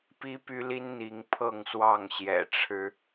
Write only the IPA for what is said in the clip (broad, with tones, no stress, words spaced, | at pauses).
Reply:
pi˦py˦li˦n n̪i˨˦ŋ pʰɤ˥˨ŋswɑ˥˨ŋɕjɛ̰˨˩ʈ͡ʂʰɻ̩˨˦